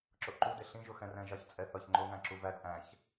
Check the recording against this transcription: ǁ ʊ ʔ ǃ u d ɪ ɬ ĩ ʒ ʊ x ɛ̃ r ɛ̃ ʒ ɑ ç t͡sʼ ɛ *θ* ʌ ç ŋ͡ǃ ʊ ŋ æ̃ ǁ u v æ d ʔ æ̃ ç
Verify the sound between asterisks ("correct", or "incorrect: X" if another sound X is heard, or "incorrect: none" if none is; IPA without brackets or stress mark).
correct